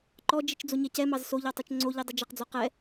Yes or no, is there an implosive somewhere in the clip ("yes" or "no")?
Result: no